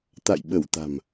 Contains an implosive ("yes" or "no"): yes